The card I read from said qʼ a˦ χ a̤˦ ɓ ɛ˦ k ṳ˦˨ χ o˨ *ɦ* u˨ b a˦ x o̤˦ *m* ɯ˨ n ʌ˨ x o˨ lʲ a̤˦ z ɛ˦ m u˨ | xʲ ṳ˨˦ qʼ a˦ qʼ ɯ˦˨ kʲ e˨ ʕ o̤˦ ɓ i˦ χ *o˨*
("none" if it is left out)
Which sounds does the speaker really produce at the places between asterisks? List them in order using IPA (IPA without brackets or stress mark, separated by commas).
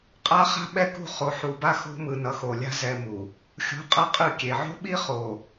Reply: ħ, m, o˨